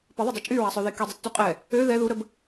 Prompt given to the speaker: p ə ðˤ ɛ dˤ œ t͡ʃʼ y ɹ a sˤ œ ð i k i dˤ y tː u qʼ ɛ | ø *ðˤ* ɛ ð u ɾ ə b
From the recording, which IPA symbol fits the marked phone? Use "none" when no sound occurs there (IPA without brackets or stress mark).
ð